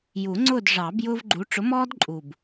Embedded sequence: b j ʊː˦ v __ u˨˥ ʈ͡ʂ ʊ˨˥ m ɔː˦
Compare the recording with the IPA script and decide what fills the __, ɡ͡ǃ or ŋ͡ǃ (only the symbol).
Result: ɡ͡ǃ